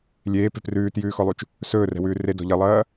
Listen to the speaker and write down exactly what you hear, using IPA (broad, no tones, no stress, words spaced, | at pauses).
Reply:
lʲeːpe̤ prʉːtjʉːxɔlˠut͡ʃ | sɵːrɛ̤wʉː redɔ̤ ʎɐlˠɐː